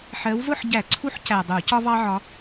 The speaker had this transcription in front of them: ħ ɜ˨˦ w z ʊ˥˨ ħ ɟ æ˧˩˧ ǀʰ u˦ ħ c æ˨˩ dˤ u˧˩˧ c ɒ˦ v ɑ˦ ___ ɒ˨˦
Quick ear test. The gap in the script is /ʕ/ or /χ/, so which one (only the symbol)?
ʕ